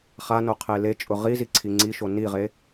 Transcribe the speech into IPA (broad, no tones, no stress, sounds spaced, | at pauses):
χ a n o qʰ e l e t͡ʃʼ ʊ ʁ i z i ǀʰ i ŋ͡ǀ i ʃ o n i ʁ e